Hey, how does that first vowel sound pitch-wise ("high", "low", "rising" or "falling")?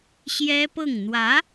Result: high